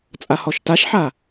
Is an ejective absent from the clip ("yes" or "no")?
no